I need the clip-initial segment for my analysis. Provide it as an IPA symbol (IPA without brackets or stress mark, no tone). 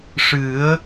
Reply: ʂ